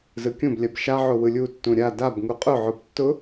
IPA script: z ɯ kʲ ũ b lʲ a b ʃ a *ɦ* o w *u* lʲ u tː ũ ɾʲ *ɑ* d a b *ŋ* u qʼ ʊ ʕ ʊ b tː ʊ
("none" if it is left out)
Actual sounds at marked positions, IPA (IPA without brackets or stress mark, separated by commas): ʕ, ɯ, a, ŋ